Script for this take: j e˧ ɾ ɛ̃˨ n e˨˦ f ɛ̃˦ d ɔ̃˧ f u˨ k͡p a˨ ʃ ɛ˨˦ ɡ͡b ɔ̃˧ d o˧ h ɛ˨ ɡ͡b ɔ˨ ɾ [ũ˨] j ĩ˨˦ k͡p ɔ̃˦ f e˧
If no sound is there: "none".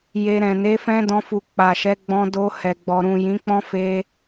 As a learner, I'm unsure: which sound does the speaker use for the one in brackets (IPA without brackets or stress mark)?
ũ˨